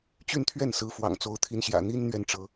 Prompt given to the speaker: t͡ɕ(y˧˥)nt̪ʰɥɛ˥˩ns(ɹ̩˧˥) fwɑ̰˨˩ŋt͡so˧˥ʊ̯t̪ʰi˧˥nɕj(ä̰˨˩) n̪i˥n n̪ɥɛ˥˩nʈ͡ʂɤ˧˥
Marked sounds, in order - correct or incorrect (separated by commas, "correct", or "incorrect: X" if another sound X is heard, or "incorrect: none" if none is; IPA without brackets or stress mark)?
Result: incorrect: y˥˧, correct, correct